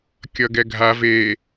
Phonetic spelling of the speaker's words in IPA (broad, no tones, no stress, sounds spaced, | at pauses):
kʲ ʌ ɡ ɛ ɡʱ a v e